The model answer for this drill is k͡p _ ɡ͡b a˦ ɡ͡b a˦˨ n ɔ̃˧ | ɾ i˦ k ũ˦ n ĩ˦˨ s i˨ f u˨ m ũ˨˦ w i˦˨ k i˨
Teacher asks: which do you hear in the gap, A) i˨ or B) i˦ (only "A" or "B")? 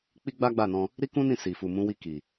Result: B